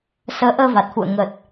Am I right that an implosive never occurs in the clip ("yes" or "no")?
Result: yes